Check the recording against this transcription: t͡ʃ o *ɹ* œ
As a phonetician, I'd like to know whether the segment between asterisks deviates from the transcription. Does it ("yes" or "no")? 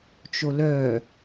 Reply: yes